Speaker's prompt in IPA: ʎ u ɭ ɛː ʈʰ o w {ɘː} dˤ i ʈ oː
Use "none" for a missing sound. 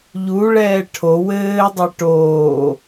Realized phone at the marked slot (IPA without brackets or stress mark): ɘː